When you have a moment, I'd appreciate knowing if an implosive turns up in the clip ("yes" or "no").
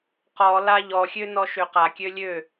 no